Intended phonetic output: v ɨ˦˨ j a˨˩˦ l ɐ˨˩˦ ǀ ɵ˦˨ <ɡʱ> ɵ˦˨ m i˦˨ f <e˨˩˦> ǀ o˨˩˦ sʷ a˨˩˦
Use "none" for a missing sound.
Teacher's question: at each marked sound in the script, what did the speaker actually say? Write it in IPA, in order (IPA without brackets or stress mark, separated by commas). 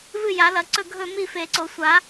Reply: ɡʱ, e˨˩˦